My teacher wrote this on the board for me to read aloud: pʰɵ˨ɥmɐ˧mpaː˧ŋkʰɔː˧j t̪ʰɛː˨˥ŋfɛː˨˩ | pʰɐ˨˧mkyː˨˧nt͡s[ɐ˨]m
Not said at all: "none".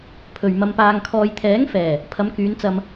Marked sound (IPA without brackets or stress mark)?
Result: ɐ˧